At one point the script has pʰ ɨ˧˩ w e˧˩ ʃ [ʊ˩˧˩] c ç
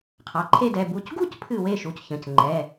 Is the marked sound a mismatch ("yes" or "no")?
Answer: yes